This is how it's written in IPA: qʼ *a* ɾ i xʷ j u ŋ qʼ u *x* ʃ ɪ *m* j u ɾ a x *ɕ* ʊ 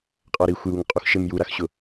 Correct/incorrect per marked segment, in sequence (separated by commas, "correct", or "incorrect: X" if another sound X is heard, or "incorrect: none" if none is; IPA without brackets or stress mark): correct, correct, correct, correct